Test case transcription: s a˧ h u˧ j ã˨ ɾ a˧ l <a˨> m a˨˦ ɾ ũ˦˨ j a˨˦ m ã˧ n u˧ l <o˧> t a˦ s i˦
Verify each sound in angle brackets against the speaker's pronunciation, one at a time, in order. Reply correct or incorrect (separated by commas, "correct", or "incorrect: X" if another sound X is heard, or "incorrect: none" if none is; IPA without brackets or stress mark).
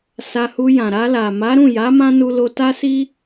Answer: correct, correct